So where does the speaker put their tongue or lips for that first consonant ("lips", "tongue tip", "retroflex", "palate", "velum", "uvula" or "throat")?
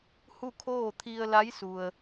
throat